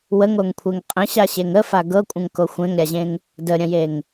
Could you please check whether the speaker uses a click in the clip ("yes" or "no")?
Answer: no